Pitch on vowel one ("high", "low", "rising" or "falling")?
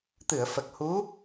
low